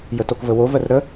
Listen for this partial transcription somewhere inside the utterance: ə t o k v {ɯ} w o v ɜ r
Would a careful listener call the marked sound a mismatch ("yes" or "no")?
yes